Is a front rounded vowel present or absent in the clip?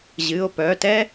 present